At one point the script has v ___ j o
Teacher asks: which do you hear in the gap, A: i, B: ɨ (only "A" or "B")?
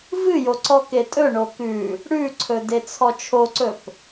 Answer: B